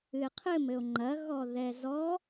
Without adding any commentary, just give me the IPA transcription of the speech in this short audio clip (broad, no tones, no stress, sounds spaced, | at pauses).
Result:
ɨ e̯ qʰ ɘ m ɘ o̯ ŋ͡ǃ ɐ ɣ ɔ ð ɛ z ɔ